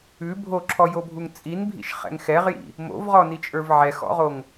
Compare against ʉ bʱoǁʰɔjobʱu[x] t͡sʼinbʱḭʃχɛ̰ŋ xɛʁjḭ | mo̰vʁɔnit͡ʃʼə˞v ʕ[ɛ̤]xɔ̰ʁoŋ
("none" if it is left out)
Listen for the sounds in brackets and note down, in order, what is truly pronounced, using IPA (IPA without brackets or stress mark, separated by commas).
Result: ŋ, ɛ